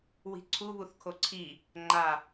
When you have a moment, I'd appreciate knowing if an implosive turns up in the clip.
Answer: no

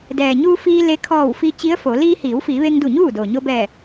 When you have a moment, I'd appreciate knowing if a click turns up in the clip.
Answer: no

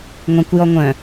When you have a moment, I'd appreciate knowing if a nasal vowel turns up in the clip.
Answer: yes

